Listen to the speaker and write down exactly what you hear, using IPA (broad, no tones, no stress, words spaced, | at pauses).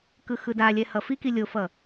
kɯxɯdalʲɛ hʌfiki lʲofʌ